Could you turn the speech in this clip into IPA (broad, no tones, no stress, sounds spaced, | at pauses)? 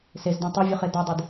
s e z d õ tˤ o vʲ o χ e d ɒ dˤ i d